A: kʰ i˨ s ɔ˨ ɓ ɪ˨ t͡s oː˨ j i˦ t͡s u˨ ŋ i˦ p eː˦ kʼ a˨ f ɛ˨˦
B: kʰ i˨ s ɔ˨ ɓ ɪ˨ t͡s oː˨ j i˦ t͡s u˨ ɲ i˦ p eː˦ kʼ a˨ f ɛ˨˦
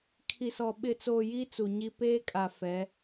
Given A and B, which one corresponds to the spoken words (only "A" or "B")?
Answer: B